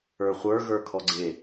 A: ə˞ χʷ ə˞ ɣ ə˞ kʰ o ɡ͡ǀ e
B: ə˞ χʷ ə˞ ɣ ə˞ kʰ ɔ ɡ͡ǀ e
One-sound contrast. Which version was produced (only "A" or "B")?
B